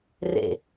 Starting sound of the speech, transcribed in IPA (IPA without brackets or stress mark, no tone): r